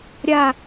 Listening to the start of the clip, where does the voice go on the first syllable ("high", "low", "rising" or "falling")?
falling